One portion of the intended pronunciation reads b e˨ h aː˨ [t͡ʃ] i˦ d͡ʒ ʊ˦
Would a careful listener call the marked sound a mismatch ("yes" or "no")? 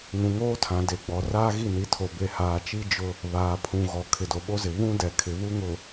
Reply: no